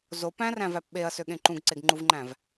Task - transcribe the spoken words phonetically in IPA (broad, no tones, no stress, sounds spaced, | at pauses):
z o p æ̃ r æ̃ v æ p ɓ e ɐ̯ s ø ɠ ẽ ǃ ũ ɡ ǀ e ɡ ŋ͡ǃ u v ŋ͡ǃ æ̃ v